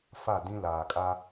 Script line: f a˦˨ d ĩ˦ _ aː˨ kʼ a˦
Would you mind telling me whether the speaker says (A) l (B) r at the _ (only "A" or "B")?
A